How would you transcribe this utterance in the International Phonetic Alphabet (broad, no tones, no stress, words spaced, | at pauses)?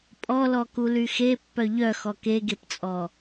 pʼɔlɔkuly xepːœ ʎœxɔ keɡept͡sʼɔ